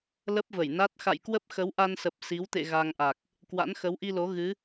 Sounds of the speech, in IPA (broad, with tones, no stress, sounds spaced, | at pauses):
l ə˦˥ p̚ v ə˧˩ j n a˦˥ t̚ x a̰˧˨ j k w ə˦˥ p̚ x ə˨˦ w ʔ a˧ n s ə˨˩ p̚ s i˨˦ w t̪ ḛ˧˨ ɣ a˧ ŋ ʔ a˨˩ k̚ | k w a̰˧˥ n x ə˨˦ w ʔ i˧ l o˨˦ ɣ ɨ˨˦